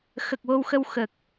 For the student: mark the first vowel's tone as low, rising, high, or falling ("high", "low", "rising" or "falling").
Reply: low